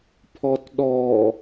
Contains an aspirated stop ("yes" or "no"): yes